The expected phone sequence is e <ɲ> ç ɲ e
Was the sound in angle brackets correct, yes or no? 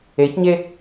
no